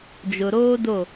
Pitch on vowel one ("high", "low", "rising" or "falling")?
low